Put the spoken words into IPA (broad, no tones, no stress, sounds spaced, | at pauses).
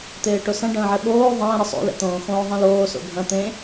t̪ eː ʈ o s ɐ̃ ɖ ə̃ː ʕ ɛ ɓ oː ðˤ ə̃ː ɾ ə sˤ o̰ l ɛ̰ t̪ õː x õː ðˤ ẽ l oː s o̰ bʱ ɐ̃ t̪ ẽ